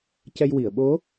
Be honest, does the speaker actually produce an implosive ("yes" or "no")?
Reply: yes